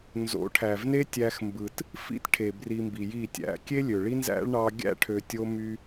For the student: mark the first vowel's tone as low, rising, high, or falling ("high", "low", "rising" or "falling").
rising